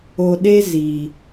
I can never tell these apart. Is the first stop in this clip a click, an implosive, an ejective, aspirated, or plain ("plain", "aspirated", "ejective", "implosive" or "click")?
implosive